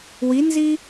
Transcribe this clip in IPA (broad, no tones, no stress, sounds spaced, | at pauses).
w i n z i